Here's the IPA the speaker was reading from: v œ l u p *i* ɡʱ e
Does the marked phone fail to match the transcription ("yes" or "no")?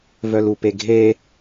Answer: yes